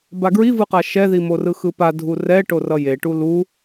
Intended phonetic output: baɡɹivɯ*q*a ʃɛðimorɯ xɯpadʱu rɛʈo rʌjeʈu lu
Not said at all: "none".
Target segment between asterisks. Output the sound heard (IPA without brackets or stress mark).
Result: q